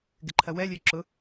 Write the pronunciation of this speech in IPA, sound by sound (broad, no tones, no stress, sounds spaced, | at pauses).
ɡ ɪ ǃʰ ɐ w ɛ lʲ ø ǁ ʊ